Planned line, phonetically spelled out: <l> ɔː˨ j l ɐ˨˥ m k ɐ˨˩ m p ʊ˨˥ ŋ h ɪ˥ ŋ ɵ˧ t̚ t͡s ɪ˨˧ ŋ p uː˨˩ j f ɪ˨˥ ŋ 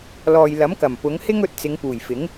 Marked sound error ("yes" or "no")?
no